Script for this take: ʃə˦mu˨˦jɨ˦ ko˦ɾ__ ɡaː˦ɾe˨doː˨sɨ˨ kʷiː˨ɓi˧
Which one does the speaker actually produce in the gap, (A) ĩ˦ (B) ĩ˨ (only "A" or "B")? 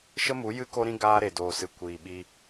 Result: A